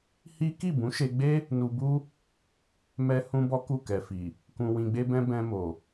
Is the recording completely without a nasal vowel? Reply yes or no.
no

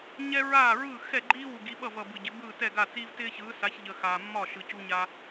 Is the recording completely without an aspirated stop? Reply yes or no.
yes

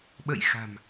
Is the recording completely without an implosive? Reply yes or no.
no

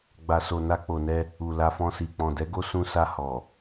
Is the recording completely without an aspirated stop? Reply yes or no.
yes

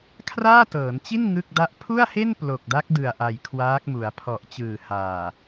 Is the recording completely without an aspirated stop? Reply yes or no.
no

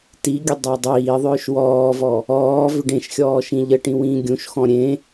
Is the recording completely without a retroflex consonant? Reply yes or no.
no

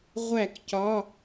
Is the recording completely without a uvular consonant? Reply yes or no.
no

